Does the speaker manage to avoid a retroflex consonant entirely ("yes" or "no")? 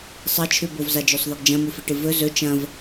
no